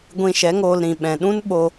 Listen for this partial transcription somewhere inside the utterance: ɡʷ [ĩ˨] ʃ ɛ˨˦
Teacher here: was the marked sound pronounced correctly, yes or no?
no